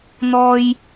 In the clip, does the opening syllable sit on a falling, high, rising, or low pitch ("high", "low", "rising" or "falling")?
high